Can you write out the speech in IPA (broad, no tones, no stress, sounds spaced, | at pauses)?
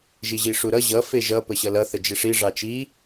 ʒ i ʑ i ʂ u ɾ ʌ ʑ ʌ f e ʒ ʌ p ə ɕ ʌ l ʌ θ ə d͡ʒ e ʂ i ʐ ɑ t͡ʃ i